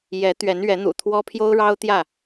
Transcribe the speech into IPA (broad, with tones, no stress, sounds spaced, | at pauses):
j ɛ˨˦ t̪ ɥ ɛ˨˦ n ɥ ɛ˨˦ n̪ ṵ˨˩ t̪ʰ w ɔ˦ pʰ j o˦ ʊ̯ ɻ ɑ˦ ʊ̯ t̪ j ä˥˨